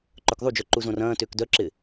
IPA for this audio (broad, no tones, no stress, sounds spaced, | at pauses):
ǃ œ k ðˤ u d͡ʒ œ ǃ u z õ r ɐ̃ː t ʏː k d œ ǁ ɪ